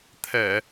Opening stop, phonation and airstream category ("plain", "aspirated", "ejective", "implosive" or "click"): aspirated